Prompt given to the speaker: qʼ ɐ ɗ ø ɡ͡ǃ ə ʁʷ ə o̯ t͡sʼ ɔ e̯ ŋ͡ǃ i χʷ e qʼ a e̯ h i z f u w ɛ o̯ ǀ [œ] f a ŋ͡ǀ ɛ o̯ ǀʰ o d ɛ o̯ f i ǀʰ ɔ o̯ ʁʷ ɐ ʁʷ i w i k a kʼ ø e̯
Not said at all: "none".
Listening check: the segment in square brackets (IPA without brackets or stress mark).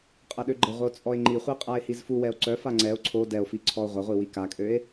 œ